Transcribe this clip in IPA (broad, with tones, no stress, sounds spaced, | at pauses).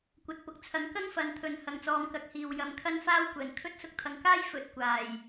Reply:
kʷ ɐ˨ t̚ p ʊ˨˥ k̚ t͡sʰ ɐ˨˥ ŋ k ɐ˥ ŋ f ɐ˨˧ n t̪ʰ ɵ˨ n h ɐ˨ ŋ t͡s ɔː˨˧ m k ɐ˨˥ k̚ h iː˨ w j ɐ˨ m kʰ ɐ˥ n f aː˥ w kʷ ɛː˨˩ ŋ kʰ ɵ˥ t̚ s ʊ˧ k̚ t̪ʰ ɐ˨ ŋ k aː˥ j f ɵ˨˥ t̚ kʷ aː˨˩ j